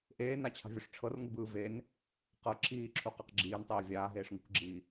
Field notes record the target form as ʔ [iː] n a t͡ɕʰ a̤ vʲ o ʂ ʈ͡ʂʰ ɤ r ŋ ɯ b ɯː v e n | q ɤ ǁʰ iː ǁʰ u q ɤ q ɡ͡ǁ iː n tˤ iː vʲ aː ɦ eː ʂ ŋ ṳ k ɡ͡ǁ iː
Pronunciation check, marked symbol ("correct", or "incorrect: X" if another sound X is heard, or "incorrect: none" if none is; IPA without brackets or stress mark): incorrect: eː